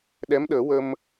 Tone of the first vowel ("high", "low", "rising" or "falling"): rising